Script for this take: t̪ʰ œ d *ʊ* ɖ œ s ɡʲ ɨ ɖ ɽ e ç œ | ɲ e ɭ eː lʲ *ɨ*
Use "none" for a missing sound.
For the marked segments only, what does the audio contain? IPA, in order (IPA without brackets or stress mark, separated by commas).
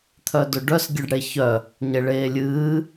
ʊ, ɨː